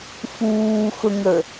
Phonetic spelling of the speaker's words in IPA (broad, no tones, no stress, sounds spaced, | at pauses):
f uː x ʊ ŋ ə